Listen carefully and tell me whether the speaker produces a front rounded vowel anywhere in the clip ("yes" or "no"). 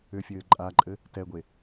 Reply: yes